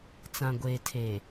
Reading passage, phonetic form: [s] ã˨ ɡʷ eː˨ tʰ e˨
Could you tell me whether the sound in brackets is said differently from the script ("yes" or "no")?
yes